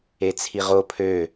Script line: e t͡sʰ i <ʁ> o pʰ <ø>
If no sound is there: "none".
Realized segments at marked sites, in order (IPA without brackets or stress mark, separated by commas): ʁ, ø